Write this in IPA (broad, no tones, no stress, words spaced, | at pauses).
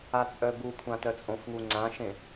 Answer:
at͡sʼœbukʷʰã tœt͡sʼõfŋu ŋ͡ǀãʃẽ